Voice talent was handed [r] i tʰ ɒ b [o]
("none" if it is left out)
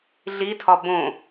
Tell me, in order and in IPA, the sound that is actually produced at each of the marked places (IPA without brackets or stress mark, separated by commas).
ɮ, õ